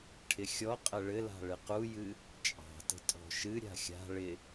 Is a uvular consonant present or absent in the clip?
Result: present